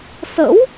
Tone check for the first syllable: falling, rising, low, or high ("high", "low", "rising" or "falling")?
rising